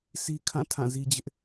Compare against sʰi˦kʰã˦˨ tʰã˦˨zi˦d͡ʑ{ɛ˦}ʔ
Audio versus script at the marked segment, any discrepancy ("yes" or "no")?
yes